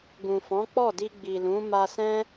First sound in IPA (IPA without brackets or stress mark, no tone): ɡ